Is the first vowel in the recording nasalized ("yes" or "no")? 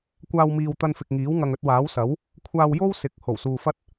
no